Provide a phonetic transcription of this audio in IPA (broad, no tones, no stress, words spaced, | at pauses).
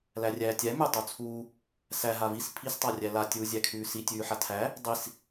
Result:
lærʲæːtʲæ mʉ tˤut͡sʰuː | sæ ɦavis pʰis tˤarʲæla tʲuːzʲækʰʉːsi tʲʉːħatʰæ | dˤis